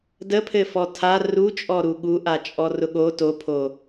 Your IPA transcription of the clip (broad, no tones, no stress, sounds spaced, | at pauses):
d ə pʰ ɘ f ɔ tʰ a r u t͡ʃʼ ɔ ɾ u ɠ u ʔ a t͡ʃʼ ɔ r ʊ ɠ o t o pʰ o